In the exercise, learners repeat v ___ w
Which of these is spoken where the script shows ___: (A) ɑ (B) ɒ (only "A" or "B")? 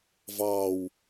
A